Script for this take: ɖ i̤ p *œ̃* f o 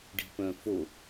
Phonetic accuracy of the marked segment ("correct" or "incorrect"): correct